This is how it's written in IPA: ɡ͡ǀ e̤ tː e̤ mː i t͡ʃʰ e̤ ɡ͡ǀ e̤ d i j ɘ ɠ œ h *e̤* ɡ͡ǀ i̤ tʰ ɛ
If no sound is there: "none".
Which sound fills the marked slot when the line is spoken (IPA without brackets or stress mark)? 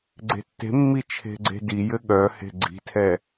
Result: e̤